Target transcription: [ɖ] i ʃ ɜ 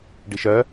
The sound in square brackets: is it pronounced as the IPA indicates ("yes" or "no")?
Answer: yes